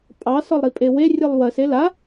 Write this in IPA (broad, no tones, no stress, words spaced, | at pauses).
pʼɑ sɒlˠɾipʼewe rʲɨlˠwɜs ela